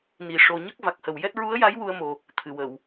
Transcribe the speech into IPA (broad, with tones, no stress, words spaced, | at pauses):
ni˨˩ ʂo˨˩ɲə˦˥k̚ va˨˩k̚hə˨˩wjɛ˦˥t̚ ɹu˧˥ə̯ja˧˥j wu˧ə̯mo˨˩ | t̪ʰɨ˨˩˨wə˨˩˨w